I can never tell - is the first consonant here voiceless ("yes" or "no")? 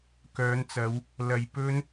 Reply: yes